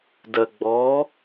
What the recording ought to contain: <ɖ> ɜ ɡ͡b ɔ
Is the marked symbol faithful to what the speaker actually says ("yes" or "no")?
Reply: no